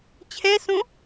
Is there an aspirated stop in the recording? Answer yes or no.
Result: yes